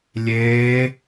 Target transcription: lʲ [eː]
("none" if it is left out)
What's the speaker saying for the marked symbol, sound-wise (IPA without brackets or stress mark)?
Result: eː